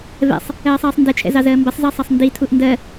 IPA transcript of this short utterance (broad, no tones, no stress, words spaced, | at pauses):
vɛ̰sˤ | ɜːsˤɜːsˤndɛt͡ʃʰɛ̰ zɑzɜːmbɜsˤzɜ sˤɑsˤnditʰuʔ ndɜ